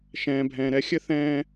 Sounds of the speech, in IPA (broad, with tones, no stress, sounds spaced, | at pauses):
ʃ ɛ̃ː˩ bʱ ɛ̃ː˩ ɾ ɛ˧˥ xʲ ɘ˥ θ ɛ̃ː˧